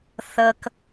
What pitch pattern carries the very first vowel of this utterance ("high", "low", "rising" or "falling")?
high